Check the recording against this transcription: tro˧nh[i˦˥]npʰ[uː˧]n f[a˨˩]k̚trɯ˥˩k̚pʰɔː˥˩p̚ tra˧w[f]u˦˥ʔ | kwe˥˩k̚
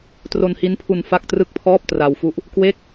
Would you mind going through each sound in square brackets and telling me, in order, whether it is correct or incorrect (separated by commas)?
correct, incorrect, incorrect, correct